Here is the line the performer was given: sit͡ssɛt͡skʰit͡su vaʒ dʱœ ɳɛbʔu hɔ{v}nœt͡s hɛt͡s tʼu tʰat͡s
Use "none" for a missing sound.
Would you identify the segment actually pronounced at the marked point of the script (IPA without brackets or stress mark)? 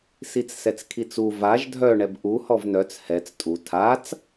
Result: v